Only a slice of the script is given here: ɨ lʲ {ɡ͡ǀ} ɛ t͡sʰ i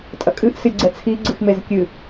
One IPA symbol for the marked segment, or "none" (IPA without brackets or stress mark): ɡ͡ǀ